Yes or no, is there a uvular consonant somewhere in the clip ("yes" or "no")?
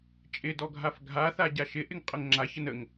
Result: yes